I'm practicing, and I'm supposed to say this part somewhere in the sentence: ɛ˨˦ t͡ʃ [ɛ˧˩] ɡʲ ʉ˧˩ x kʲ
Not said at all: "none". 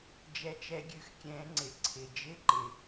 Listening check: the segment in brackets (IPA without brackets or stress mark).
ɛ˨˦